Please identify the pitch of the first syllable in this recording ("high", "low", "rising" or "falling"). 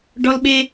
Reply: high